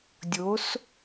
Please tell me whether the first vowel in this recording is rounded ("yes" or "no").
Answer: yes